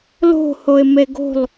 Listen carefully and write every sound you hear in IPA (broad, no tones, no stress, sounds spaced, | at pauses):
l o̤ h o ɪ̯ m e ɡ o̤ lˠ